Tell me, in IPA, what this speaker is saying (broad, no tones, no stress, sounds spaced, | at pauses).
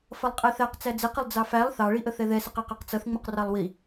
f ʌ lˠ qʼ ɛ θ æ q t͡s æ d͡z ɪ q ɪ lˠ d͡z ɑ f æ lˠ θ ɑ ɭ i ʔ ə θ ɛ ð ɛ s ɪ q æ q ɑ q t͡s ʌ θ ŋ͡m ʊ q r ɑ lˠ w i